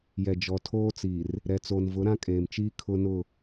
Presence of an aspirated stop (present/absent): present